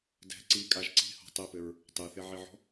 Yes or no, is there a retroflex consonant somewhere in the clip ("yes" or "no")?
no